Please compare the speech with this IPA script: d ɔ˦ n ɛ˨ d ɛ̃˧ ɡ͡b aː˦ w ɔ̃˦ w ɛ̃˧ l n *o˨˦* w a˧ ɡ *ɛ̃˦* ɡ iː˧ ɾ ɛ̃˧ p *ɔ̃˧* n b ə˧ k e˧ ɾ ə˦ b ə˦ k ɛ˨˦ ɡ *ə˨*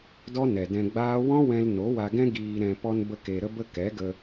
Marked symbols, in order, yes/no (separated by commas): yes, yes, no, no